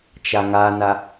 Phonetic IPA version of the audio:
t͡ʃ a ŋ a n a

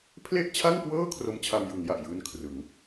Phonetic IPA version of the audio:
pʰ l e˥˩ ʔ t͡ɕʰ a˥˩ ŋ k w ɤː˥˩ kʰ r o˦˥ m t͡ɕʰ a˧ m j ɯ˩˦ ŋ j a˨˩ ʔ j ɯː˦˥ n kʰ r ɯ˩˦ ŋ

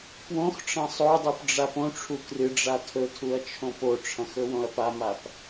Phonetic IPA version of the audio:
p w õ x ʈ͡ʂ ɐ̃ sˤ o dˤ u p ɖ͡ʐ a p õ ʈ͡ʂʰ u k r ɨ ɖ͡ʐ a tʰ ɵ tʰ u ɐ̯ t͡ʃʰ õ p o ʈ͡ʂʰ ɐ̃ x ɵ w õ ɐ̯ p a m a p

